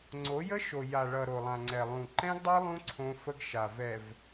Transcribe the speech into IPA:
ŋ͡ǀo˨˦jə˦ʃo˨ ja˨ɭʌ˨ ɾo˨lˠã˨ŋ͡ǀɛ˨ lˠũ˨ ǃɛ̃˦ɡdˤo˦ lˠũ˦ ǀʰõ˦fə˦ɡ ʃa˨vɛ˨v

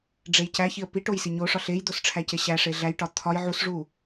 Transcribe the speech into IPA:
ɖ͡ʐejcæçiə̯ pi ʈojsiɲoʂɒ ɬejd̪os ʈ͡ʂʰæceɕæʂe ɮæjʈɒ t̪ʰɒj ʕusʐu

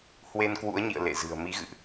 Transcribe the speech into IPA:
hwe˧nkwṵ˧˥ə̯ɲḭ˧˨ə̯ lḛ˧˨zɨ̤˨˩ə̯ mi˨˦ɣɨ̰˧˨ʔ

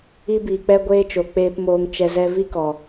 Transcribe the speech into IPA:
i˦biː˨k͡pɛ˦ ɡʷeː˦t͡ʃo˨k͡peː˧pmoː˧ŋ t͡ʃɛ˧zɛ˦ vi˦kɔ˨

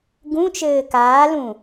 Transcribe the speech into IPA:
ɡũt͡ʃɘː kaːlũ

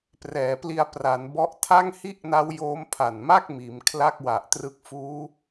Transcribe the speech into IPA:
prɛː˩˦pli˧a̯pra˩˦nbɔ˦˥ʔ tʰa˥˩ŋhi˥˩ʔna˦˥w joː˦˥mpʰa˨˩nma˥˩k̚ miː˩˦mkʰla˥˩k̚ wa˨˩ʔtrɯ˦˥k̚ fuː˦˥

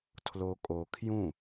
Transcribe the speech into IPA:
tʰlokʼokʰjũ

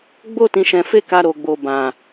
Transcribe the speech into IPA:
ɡ͡bo˦ tĩ˧ʃɛ̃˧fe˦ ka˧ɾo˨ ɡ͡bo˨ bã˨

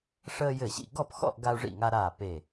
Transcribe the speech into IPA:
ʂəː˧jɘ˧˩ɕḭ˧˩ ɡɔ˥˨pxɔ̰˥˨ʔ ɡa˧u̯ ʐḭ˧˩ŋa˧ɾaː˧˩ pe˧˩

